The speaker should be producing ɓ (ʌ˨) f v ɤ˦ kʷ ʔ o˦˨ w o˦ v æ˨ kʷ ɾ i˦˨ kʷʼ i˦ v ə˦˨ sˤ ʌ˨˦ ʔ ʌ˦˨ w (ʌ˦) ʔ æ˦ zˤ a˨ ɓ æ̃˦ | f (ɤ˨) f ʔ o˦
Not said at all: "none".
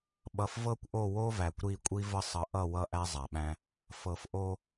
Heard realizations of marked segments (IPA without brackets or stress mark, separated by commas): ʌ˨, ʌ˦, ɤ˨